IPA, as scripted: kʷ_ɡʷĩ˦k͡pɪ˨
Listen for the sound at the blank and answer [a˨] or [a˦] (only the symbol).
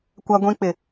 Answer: a˦